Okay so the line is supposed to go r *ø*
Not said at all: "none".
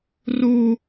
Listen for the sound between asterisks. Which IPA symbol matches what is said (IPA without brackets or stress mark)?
u